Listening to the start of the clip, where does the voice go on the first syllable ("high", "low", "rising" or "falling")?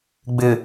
low